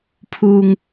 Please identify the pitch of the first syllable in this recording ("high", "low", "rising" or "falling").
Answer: low